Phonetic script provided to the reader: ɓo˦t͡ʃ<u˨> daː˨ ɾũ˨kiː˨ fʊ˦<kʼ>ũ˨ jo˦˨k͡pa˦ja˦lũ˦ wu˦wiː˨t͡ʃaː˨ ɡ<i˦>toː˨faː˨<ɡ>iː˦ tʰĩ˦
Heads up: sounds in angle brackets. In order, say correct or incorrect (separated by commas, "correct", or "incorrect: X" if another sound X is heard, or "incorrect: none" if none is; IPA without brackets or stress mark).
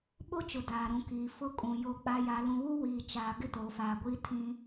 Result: incorrect: ʊ˨, correct, incorrect: ɪ˦, incorrect: ɡʷ